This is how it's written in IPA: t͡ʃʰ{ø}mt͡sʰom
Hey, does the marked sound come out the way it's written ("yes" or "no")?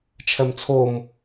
no